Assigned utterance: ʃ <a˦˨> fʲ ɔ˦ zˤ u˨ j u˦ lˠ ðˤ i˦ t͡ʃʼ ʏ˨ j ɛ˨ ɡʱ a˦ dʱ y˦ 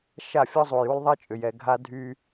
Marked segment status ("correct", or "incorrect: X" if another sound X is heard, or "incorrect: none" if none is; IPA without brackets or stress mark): correct